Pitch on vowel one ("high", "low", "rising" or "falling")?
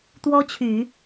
high